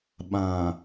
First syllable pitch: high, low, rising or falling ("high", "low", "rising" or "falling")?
low